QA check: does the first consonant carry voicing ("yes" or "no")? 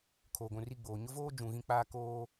no